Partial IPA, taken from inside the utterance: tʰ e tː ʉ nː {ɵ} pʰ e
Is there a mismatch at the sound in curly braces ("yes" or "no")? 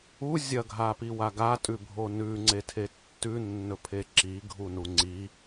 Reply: no